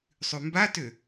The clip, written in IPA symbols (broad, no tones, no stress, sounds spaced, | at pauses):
sˤ ʉ m b a t ø